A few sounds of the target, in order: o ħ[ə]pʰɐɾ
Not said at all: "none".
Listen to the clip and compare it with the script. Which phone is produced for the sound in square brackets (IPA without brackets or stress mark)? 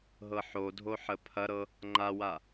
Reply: ə